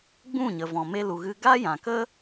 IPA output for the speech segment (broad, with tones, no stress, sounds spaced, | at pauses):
ɡ͡b ũ˦˨ ɲ ə˨ v ɔ̃˨ m e˧ l u˨ ɣ ɨ˧ ɡ a˦ j ã˨ k ə˦